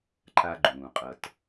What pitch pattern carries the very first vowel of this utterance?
low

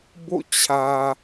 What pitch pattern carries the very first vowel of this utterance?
falling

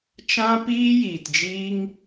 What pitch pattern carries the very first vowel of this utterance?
high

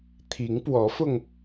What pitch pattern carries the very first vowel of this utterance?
rising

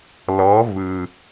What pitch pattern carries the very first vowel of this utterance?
rising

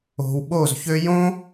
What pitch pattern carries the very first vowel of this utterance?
low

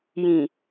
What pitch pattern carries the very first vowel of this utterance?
low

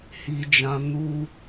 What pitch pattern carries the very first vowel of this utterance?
high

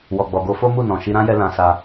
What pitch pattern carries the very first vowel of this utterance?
low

